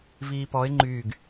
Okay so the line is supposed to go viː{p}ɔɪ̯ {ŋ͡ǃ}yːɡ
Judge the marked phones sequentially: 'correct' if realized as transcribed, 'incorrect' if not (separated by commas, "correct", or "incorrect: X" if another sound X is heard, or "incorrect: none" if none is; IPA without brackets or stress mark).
correct, correct